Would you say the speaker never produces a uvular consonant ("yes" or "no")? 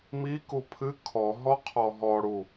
no